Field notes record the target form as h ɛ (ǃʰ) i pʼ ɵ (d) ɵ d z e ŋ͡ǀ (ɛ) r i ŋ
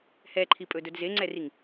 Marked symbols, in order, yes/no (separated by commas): yes, yes, yes